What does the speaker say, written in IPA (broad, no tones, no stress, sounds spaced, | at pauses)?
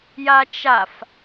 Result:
j a t͡ʃ a f